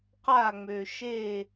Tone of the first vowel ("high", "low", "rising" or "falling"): falling